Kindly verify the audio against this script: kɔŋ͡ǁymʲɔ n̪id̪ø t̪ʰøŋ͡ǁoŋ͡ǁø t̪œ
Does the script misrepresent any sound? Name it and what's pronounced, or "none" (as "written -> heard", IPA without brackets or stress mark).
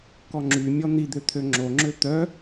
none